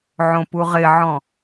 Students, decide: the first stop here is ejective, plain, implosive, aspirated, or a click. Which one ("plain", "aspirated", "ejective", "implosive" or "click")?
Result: plain